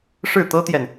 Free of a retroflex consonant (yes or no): no